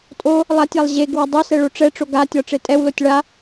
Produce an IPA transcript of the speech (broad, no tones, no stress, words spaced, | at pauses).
tʼo | lˠatʲalˠ ʑeɡ wɒdˤosɛ ɭoʈ͡ʂɛʈ͡ʂo ɡatʲɒ ʈ͡ʂetʼɛwlotʲ ɭa